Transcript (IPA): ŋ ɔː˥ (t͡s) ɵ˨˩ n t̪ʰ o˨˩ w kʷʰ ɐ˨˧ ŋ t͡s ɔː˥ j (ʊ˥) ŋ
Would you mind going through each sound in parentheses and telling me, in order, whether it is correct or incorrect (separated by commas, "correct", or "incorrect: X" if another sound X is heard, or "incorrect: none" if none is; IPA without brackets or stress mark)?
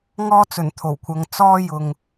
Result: correct, incorrect: ʊ˨